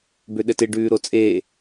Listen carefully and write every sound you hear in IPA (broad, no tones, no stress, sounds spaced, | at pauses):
b ø ɗ ɘ t ɪ ɖ ʉː ɾ o t͡sʼ eː